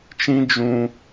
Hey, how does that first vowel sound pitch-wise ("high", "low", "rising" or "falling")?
high